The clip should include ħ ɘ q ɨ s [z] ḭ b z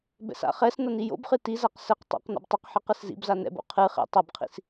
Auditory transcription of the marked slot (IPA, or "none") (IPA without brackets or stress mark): z